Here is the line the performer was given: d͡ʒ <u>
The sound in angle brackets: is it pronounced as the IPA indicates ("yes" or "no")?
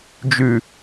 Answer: no